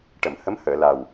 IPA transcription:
ʈ ə˨˩˨ m h ə˧˥ m h əː˨˩˨ l a˨˩ w

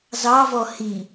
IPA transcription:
z ɑ v ɔ h i

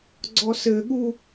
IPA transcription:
ɡ͡ǀ ɔ s ɘ ɠ u

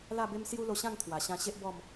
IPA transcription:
l a˥˧ b e˦ m s j u˦ l o˧ ɕ ã˥˧ ŋ t̪ʰ w a˨˩ ɕ ã˧ ɕ e˦ ʔ b ɔ˥˧ m

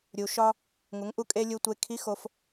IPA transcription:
ɾʲ u˧ ʃ ɒ˥ | ŋ u˧˥ ŋ ʔ u˥ kʼ e˥ lʲ u˥ tʷ e˥ kʰ i˧˥ x o˧ f

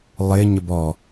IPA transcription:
lˠ ɪ ɲ ə b ɔ

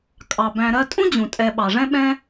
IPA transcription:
kʼ ɑ˩ b æ̃˨ ɾ ɜ˦ tʼ ũ˥ d͡ʑ ũ˩ tʼ ɛ˨ ɓ ɑ˩ ʐ ɛ̃˥ ɓ ɛ̃˦

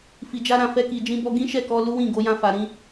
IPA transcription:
f i˨ d͡ʒ a˧ ɾ ã˨ f ɛ˧ k i˨ d͡ʒ ĩ˧ b ɔ˧ ɡ ĩ˦ ʃ ɛ˦˨ k ɔ˧ l u˦ w ĩ˦˨ ɡ o˨˦ j ã˧ f a˨ ɾ ĩ˧

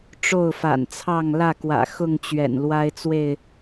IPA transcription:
ʈ͡ʂ o˥˨ ʊ̯ f a̰˨˩ n t͡sʰ ɑ˥˨ ŋ l ä˥˨ k w ä̰˨˩ x ʊ˥˨ ŋ t͡ɕ ɥ ɛ̰˨˩ n l w a˦ ɪ̯ t͡s w e˥˨ ɪ̯

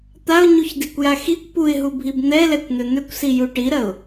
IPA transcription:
t̪ a ʊ̯ ɲ u ç d i kʷ j a x i kʷ p u ɪ̯ ɦ u bʱ i b n̪ ɛ l ɛ kʷ n̪ ʏ n̪ ʏ kʷ s i j u ʈ i ɾ ɐ ʊ̯

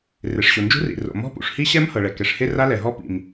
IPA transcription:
r e˩ ʂ ɕ o˩ n d͡ʒ ṳ˦˥ r ḭ˩ r o̰˩ m ɔ̤˦˥ p ṵ˩ ʂ h i˦˥ ɕ ɛ˦˥ m h ɤ˩ ɭ ɛ˩ k ɛ˩ ʂ h e˦˥ r a˦˥ l ɛ˩ ɦ ɔ˦˥ p ḭ˩ m

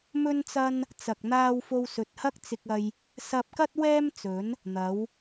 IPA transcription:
m ɵ˥ n t͡s ɐ˥ n | t͡s ɐ˨ k̚ n̪ aː˧ w f o˧ w s ɵ˨ t̚ h ɐ˥ k̚ t͡s ɪ˧ k̚ ɐ˧ j | s ɐ˧ p̚ k ɐ˥ t̚ w ɛː˥ m t͡s ɵ˨˥ n | n̪ ɐ˨˥ w

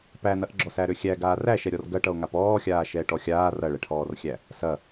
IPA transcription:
p æ n ɐ ʔ ɡ͡ǁ ɔ s æ ɾ ø xʲ æ ɡ aː r æ ʃ ɛ ɾʲ ɔ r ɡ ɐ ʈ ʌ o̯ ŋ a p ɔː xʲ aː ʃ ɛː ʈ ɔ xʲ aː r ɐ ɭ ɛ ʈʰ ɔː r xʲ æ | s ɐ

